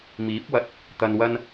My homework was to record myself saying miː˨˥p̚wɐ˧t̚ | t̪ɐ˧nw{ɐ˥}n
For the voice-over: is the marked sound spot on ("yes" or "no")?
yes